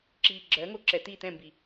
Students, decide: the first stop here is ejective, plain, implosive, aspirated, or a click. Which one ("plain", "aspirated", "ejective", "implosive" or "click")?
click